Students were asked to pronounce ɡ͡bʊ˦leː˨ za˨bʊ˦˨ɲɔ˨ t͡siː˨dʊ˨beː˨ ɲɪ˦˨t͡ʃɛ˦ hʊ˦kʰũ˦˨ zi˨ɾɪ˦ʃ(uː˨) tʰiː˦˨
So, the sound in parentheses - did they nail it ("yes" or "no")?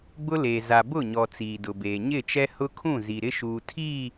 yes